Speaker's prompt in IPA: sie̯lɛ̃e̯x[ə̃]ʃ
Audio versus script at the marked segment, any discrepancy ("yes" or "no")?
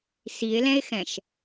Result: yes